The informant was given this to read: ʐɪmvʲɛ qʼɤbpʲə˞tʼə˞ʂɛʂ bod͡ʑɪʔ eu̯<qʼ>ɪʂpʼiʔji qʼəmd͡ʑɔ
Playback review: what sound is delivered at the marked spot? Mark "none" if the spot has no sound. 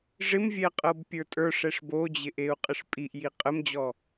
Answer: qʼ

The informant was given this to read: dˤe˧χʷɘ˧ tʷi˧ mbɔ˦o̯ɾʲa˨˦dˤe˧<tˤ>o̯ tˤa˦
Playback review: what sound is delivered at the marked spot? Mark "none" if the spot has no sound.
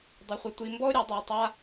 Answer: none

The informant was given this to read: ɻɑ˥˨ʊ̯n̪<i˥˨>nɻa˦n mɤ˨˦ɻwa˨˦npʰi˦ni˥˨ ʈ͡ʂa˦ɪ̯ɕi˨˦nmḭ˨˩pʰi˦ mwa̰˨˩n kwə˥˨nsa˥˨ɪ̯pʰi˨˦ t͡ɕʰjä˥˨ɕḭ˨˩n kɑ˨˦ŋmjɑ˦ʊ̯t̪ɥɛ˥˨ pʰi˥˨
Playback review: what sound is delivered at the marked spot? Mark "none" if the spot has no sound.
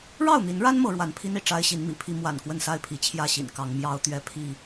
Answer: i˨˦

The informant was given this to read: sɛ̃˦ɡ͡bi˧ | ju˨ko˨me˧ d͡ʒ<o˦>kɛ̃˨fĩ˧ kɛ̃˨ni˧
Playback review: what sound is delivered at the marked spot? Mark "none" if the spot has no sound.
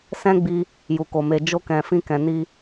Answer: o˧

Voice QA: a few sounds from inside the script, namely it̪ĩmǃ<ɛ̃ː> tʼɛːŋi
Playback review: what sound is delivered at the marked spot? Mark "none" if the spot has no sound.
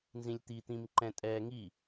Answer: ɛ̃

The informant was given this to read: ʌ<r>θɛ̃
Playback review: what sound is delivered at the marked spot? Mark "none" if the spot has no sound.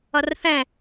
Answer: r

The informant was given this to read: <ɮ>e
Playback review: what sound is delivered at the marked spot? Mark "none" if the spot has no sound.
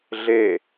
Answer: ɮ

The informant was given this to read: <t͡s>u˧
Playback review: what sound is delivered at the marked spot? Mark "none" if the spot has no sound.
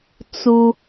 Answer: t͡s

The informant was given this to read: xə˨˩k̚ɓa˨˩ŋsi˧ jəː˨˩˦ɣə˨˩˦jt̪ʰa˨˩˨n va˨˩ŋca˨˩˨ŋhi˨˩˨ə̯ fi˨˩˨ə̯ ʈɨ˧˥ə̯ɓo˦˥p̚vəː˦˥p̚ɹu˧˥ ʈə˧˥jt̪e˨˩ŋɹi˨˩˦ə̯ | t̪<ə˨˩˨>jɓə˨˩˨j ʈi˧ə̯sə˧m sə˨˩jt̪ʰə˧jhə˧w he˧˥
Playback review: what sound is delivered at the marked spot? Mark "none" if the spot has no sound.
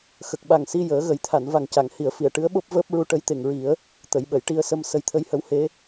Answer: ə˨˩˨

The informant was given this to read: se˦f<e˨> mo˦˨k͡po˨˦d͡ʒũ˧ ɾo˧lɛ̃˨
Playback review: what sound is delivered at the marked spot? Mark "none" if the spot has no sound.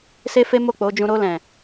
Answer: e˦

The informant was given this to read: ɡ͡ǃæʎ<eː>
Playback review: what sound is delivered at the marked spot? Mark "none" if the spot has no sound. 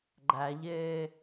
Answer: eː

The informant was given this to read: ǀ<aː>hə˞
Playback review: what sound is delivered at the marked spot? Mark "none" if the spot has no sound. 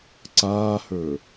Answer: aː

